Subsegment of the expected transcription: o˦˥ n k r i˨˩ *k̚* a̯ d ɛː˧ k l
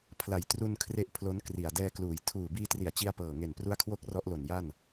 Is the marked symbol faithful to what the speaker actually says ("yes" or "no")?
no